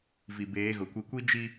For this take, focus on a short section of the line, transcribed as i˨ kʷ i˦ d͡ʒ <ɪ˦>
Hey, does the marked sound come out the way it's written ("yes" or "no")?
no